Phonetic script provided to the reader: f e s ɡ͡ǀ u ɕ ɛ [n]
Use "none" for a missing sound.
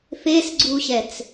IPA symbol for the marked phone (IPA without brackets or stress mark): t͡s